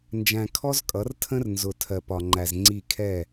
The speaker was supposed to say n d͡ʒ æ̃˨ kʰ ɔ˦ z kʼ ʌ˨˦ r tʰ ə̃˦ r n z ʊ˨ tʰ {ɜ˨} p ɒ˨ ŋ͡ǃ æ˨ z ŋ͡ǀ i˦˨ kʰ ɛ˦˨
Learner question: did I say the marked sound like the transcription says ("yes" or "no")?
yes